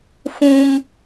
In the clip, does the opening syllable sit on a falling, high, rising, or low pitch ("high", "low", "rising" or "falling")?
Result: high